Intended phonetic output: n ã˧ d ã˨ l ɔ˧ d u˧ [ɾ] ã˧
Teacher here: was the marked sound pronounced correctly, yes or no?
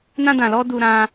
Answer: yes